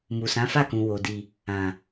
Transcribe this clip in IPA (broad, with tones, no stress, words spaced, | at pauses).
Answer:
mu˨sã˨˦fa˦˨kũ˨ wo˨ di˨ | ã˨